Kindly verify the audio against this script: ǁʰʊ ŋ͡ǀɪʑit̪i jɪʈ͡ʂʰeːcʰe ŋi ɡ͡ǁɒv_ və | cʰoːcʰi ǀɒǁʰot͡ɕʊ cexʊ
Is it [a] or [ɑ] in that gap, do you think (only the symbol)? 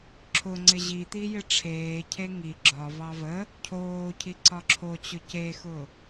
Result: ɑ